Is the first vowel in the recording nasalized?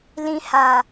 yes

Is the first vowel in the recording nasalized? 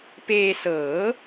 no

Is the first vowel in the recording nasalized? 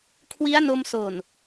no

